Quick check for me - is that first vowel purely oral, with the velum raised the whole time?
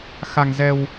yes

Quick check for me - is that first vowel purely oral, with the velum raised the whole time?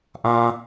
no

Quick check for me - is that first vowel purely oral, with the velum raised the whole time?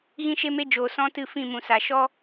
no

